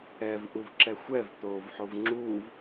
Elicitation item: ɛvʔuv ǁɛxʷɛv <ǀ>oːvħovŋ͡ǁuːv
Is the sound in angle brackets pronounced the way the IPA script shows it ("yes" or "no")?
no